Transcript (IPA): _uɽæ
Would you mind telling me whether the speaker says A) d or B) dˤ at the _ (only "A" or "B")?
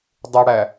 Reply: B